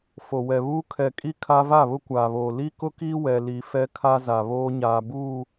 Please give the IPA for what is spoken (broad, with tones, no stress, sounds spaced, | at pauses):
f o˨ w ɛ˨ β uː˦ kʰ ɛ˨ kʼ i˦ kʰ a˦ v a˦˨ β ʊ˦ kʷ aː˨ β oː˨ l i˦ k ʊ˦ k iː˦ w ɛ˦ l i˦ f ɛ˦ kʰ a˦ z a˨ β oː˦ ɲ aː˨ b uː˦˨